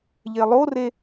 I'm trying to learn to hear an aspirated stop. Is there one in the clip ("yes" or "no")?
no